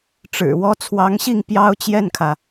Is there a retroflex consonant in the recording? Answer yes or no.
yes